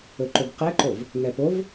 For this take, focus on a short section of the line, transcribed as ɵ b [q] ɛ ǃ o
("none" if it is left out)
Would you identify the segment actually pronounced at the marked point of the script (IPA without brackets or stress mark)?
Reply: q